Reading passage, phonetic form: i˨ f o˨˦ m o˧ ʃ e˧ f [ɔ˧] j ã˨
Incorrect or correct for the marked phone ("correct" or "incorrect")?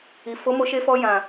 correct